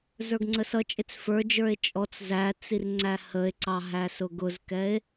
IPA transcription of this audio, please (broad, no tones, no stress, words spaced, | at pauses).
zə˞ɡŋ͡ǀəsʌt͡ʃʼɪt͡s fə˞d͡ʒə˞e̯ t͡ʃʼɔt͡s zæ t͡sirŋ͡ǀæhəe̯ǀɑ ɦæsʊɡʊzkɛe̯